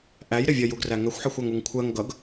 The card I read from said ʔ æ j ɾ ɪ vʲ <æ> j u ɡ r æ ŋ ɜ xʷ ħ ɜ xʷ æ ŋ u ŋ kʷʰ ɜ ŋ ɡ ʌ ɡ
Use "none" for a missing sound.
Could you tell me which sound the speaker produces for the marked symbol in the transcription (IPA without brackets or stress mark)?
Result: ɜ